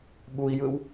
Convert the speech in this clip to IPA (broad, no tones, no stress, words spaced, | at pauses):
ɓui̯jɯw